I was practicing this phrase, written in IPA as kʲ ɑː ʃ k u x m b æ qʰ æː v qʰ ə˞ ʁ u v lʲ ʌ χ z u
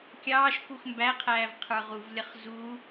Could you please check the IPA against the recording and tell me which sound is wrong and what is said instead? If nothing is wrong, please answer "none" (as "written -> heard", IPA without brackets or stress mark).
none